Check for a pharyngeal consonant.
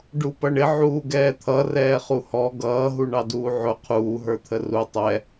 present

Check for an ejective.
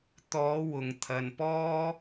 absent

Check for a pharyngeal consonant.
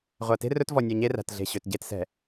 absent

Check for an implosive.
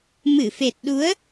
present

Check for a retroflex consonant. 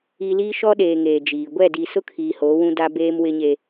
absent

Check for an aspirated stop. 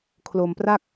present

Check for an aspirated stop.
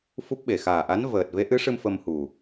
absent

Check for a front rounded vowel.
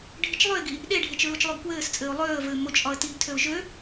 present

